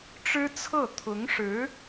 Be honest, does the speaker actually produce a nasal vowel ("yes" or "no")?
no